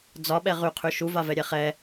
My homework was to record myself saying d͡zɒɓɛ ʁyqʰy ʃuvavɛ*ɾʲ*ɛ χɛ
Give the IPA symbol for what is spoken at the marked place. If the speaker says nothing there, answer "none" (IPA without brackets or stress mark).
ɾʲ